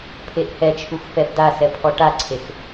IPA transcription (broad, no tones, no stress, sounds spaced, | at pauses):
pʰ e ʔ h ɛ t͡ʃʰ u x f ɛ b d a s ɛ pʰ ɔ ʈ a ǀʰ e x